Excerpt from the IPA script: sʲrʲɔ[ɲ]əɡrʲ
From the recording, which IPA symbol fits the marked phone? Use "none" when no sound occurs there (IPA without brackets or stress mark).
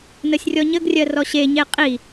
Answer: ɲ